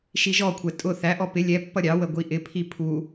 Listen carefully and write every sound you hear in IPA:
ʃ i ʒ ɔ kʷʰ ɛ tʼ ʊ θ æ ʔ ɔ p ɪ lʲ ɛ pː ʌ ɾʲ ɑ w ə ɡʷ i ʔ ɪ pʰ i pʰ u

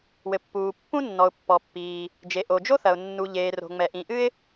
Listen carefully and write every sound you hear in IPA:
w ɘ˩ pː uː˩ pː ũ˥ nː ɔ˩ ʊ̯ pː ɔ˩ pː iː˩ | d͡ʒ e˩ ʔ o˩ d͡ʒ o˥ θ ɐ˩ ʊ̯ nː u˩ ʎ eː˩ r o̤˩ ŋ͡m ɛ˩ ʔ ĩ˩ ʔ ɨ˥ ɪ̯

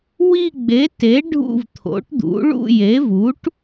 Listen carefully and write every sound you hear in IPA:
w i˦˨ ɡ͡b e˩˥ t e˩˥ ɖʱ ṵ˦˨ v t̪ʰ o̰˩˥ ʈ d̪ ṵ˩˥ ɭ ṵ˦˨ j e˩˥ v u˩˥ ʈ

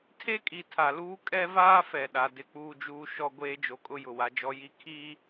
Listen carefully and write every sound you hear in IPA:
tʰ e˦ kʼ i˨ tʰ a˨ l uː˦ kʼ ɛ˦ v aː˦ f ɛ˨ ɗ a˨ d ɪ˦ k͡p uː˨ d͡ʒ uː˨ ʃ ɔ˦ ɡʷ eː˦ d͡ʒ o˨ kʼ ʊ˦ j ʊ˨ w a˦ d͡ʒ ɔ˦ j i˦ kʰ iː˦

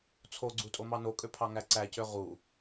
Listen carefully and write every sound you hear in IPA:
t͡sʰ o ɡ͡ǀ u tʼ o m ɑ n o kʼ ø pʰ ɑ ŋ æ ǀ æ c ø ʁ u

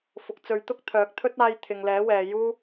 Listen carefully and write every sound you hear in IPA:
f ʊ˨ k̚ t͡s ɵ˨˧ ɥ t̪ ʊ˥ k̚ t̪ʰ œː˨˥ k̚ t̪ʰ ɵ˥ t̚ aː˧ j t̪ʰ ɪ˨ ŋ l ɛː˨˥ w ɛː˨ j uː˥

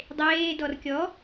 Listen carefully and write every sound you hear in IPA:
dˤ eː d ɔ r kʲ ɔ

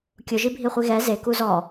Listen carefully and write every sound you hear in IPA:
kʲ ʊ ʒ i bʱ i χʷ i ɣ ɛ z e k u z ɔ

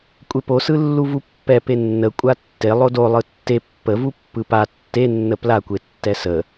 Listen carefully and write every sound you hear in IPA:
kʷʼ e p o s ɯ lː u v u pː ɛ p e nː ə kʷʼ a tː e lˠ o d o lˠ ɯ tː e pː ə v u pː ɯ p a tː e nː ə p l a kʷ e tː ɛ s ə

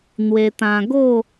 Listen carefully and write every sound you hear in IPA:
n̪ w e˧ t̪ ã˧ ɡ o˥˧

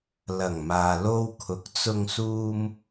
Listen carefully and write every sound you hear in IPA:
l ɐ˨˩ ŋ m aː˨ l o˧ w kʰ ʊ˨ k̚ t͡s ʊ˧ ŋ s uː˥ m

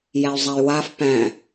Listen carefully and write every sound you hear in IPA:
j æ y̯ zˤ a y̯ w a f p æ̃

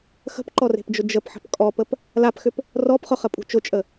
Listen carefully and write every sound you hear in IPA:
x ə̤ p ǃ ɔ r e̤ p d͡ʒ ʊ d͡ʒ ə p ħ ə̤ p kʼ ɔ p ə p | l a p x ʏ p | r ɔ p χ ʊ χ ə pʼ ṳ t͡ʃ ʊ t͡ʃʼ ə

